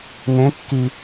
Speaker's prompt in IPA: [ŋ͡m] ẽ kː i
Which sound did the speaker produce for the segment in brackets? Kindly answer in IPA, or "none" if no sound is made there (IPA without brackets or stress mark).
ŋ